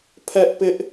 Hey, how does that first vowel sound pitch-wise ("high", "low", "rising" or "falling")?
high